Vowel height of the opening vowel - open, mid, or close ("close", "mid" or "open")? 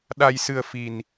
open